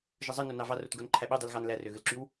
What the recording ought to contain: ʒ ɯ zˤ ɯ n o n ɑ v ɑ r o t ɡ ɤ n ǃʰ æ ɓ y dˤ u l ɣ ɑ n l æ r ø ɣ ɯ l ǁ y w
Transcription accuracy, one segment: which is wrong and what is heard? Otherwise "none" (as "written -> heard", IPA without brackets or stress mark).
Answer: ɤ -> o